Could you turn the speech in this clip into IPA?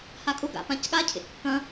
h a kʼ ʊ ɡ a̰ p ã c ɠ a cʰ ḛ kː ɐ̃

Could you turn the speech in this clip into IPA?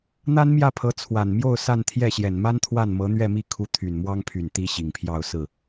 n̪ a˥ n m j ä˥˩ pʰ ɤ˧˥ t͡sʰ w a˨˩ n m j o˥˧ ʊ̯ s a˥˧ n t̪ʰ j ɛ˥˩ ɕ j ɛ˨˩ n m a˥ n t̪ʰ w a˥˩ n m ɤ˧˥ n̪ ɥ ɛ˥˧ m i˥˩ kʰ u˧˥ t̪ʰ y˨˩ n m w ɑ˥ ŋ pʰ y˨˩ n t̪ i˥ ɕ i˨˩ ŋ pʰ j ɑ˥˧ ʊ̯ s ɹ̩˥˩

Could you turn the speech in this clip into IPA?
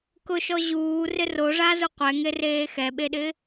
k ʊ ʃ ɔ ʑ uː r ɪ r o ʐ a z u qʷ ɛ ŋ e r eː x ɛ ɓ e ɗ ɪ

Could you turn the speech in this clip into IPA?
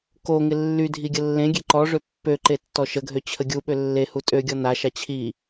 k o ŋ ɪ lː y dʱ i ɡʲ ə lː ẽ ɡʲ e ǃ ɔ ʐ ø pː ø ǃ e tː ɔ ʃ ə ɡʱ ø t͡ɕʰ ə ɡʲ u ɓ ø lː e h u tʼ ø ɡʲ ɔ n a ʃ a t͡ɕʰ i

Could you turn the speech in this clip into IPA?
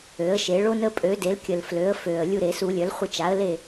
ø˩˥ ə̯ ʃ e˨˩˦ ɭ o˦ n ə˦ pʼ ø˩˥ d e˩˥ l kʲ ə˨˩ l f l ø˩˥ ə̯ f ø˨˩ ə̯ lʲ u˦˨ ɾ e˨˩˦ s u˨˩˦ lʲ œ˩˥ l χʷ ə˦˨ t͡ʃ a˩˥ ə̯ l e˦˨

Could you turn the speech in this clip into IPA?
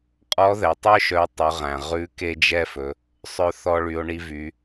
qʼ ɔ˧˥ ð ɛ˩˧ tˤ œ˥ ʃ œ˧˥ tˤ ʉ˩˧ ʁ æ̃˩ ʁ ʉ˧˥ k e˥ d͡ʒ ɛ˥ f ɵ˩˧ | sˤ œ˧ θ ɔ˧ ɭ y˩˧ o̯ ɳ i˧ v y˩˧

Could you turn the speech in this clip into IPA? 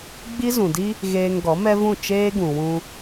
ɡ͡b i˦ z ũ˨ d i˦ | ɣ eː˧ ŋ ɡ ɔ˨˦ m ɛ˦ v ũ˦˨ t͡ʃ eː˦ ɡ ũ˨ w ũ˧

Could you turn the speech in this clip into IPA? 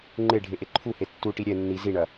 ŋ͡ǃ e ɖʱ e ʔ e ǃʰ u h e tː u ʈ i ɾʲ ɛ nː i z i ɳ ɐ

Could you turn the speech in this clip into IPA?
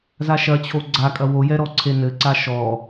z a ʃ ɐ t͡ɕʰ o ɡ͡ǀ a kʼ ɐ w o j ɛ ɾ ɔ ǀʰ e n ɘ ǀ a ʃ ɔ

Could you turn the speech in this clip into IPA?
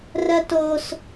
r ɜ t o s

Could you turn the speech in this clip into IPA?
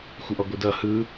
xʷ ɯ ʔ ɔ ɡʷ ɯ d ʌ h ɯ

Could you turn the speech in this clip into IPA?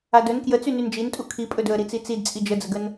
a d ɵ n k j ə t͡s y n y n d͡ʒ i n tʼ u kʰ i pʼ ɵ d ɵ ə̯ ɾ i t͡s i t͡s i d t͡sʼ i d͡ʒ ə d͡z ə ɡ ə n

